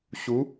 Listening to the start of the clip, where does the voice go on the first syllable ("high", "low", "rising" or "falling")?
rising